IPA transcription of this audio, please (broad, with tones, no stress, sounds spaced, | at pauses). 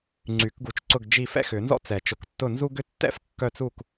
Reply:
ŋ͡ǀ y˨˩˦ k ɡ u˨˩˦ t͡ʃ ǀ ʊ˦˨ ɡ d͡ʒ i˦˨ f ɛ̰˥ x ʏ˨˩˦ n z ɔ̰˥ t͡s ɛ˨˩˦ t͡ʃ ʊ˨˩˦ k tː ʊ˦˨ n z u˥ ɡ ʏ˥ tː ɛ̰˥ f kː œ˦˨ t͡s u˦˨ k